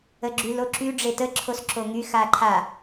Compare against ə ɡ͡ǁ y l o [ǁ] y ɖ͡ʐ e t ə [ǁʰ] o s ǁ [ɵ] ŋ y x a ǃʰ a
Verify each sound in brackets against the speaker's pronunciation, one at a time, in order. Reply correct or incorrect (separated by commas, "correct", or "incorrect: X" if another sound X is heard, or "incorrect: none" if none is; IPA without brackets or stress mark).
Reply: correct, correct, incorrect: o